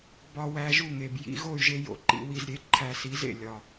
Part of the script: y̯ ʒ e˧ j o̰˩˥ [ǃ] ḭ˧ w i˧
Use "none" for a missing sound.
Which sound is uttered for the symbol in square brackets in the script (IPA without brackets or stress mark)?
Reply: ǃ